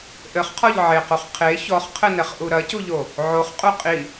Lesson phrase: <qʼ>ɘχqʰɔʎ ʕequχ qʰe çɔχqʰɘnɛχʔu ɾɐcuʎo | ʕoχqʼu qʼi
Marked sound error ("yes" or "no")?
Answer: yes